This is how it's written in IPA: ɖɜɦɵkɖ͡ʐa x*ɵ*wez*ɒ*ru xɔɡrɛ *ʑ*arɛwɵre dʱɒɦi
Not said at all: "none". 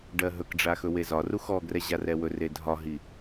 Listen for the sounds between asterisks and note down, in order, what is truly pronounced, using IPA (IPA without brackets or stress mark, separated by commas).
ɵ, ɒ, ʑ